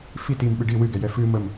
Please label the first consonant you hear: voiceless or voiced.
voiceless